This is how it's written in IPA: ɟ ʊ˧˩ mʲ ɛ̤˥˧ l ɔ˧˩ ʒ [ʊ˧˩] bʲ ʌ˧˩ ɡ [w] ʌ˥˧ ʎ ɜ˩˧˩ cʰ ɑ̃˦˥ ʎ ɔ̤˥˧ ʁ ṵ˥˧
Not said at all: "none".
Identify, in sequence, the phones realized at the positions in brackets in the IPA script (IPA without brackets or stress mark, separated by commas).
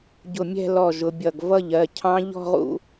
ʊ˨˦, v